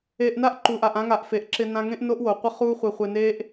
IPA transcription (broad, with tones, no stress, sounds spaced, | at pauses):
eː˧ ʔ n a˦ ʔ ǃ uː˨ ʔ a˨ ʔ ã˧ ŋ a˨ ʔ f e˨ ʔ ǁ ɪ˧ n ã˧ ŋ ẽ˦ ʔ n o˦ ʔ w o˨ qʷ ɪ˦ χ uː˦ χʷ ɪː˧ χʷ ɪː˧ n eː˦ ʔ